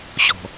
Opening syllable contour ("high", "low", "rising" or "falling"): low